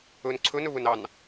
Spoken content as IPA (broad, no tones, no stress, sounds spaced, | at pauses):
ɵ n ǀʰ ɵ n ɵ β ɵ n ɑ n